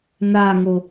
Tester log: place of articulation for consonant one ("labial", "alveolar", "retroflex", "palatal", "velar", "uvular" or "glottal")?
alveolar